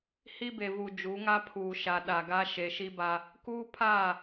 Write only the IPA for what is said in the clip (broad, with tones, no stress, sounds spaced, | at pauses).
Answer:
h i˦ b e˨ v u˨ d͡ʒ u˨˦ ŋ a˦ pʰ uː˨ ʃ a˨ ɗ a˨ ɡ a˦ ʃ e˨ ʃ i˦ b a˦ | k uː˦ pʰ aː˦˨